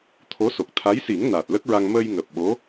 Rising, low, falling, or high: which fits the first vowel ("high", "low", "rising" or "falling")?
rising